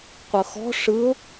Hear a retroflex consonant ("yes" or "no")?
yes